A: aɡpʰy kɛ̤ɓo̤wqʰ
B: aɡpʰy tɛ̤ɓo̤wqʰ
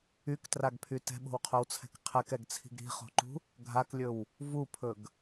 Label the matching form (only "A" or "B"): B